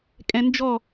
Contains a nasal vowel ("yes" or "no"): yes